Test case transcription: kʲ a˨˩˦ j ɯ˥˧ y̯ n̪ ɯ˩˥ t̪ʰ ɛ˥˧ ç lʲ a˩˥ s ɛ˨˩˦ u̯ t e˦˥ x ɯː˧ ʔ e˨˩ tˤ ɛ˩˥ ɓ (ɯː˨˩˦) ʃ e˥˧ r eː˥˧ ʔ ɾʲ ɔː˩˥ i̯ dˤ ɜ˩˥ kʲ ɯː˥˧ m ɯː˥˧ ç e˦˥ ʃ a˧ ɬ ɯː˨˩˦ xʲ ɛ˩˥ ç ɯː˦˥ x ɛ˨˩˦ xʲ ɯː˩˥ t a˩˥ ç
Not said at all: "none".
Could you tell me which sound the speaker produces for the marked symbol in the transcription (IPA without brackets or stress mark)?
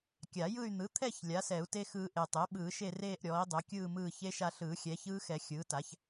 ɯː˨˩˦